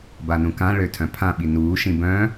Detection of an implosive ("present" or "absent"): present